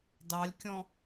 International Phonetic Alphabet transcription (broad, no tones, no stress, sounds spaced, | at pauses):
d ɑ lʲ kʲ ɔ̃